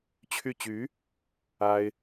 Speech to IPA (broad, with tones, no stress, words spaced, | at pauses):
t͡ɕʰy˥˩ t͡ɕy˧˥ | a˥ɪ̯